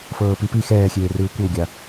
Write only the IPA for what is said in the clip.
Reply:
fɤːpipi xɛːxʲeːrɯː kʷɤwɡʲa

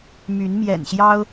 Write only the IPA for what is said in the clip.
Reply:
my˨˦nmjɛ̰˨˩nɕjɑ˦ʊ̯

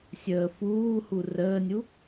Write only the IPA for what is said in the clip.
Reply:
sʲəːfuːhu rəːnʲu

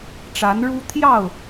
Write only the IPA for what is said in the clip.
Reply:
ʈ͡ʂa˨˦nɻu˦ t̪ʰjɑ˥˨ʊ̯

